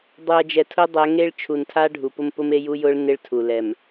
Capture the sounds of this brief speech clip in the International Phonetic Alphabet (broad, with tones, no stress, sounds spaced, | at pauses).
dˤ u˨ ɐ̯ d͡ʒ ɛ˨ tʰ ʊ˦ dˤ ɛ˨˦ ŋ e˦ ɭ t͡ʃʰ u˨ n tʰ a˦ ɖʱ u˨ p ʊ˦ m p ʊ˦ m e˦ j u˦ j ʊ˦ ɭ n ɪ˦ ɭ tʰ u˨ l ɛ˨ m